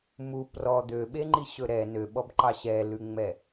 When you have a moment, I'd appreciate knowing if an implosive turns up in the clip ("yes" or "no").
yes